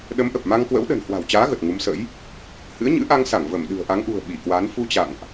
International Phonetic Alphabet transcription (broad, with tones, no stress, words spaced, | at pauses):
ɗə˨˦mʔə˨˩p̚ma˧ŋkwə̰˧˥w ɗə̤˨˩n hwa̤˨˩wt͡ɕaː˨˦ ɣə˨˩t̚ŋu˨˦msə̰˧˥j | hɨ̰˧˥ə̯ɲɨ̰˧˥ʔa˧ŋsa˧˩ŋ və˧˩mɗɨ̤˨˩ə̯ʔa˨˦ŋʔṳ˨˩ə̯ ɓi˧˩kwa˨˦n fu˧t͡ɕa̰˧˨ŋʔ